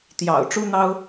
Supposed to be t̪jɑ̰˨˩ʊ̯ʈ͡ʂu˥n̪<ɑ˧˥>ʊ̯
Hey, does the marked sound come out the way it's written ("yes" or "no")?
no